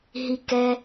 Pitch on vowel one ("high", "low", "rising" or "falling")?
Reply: falling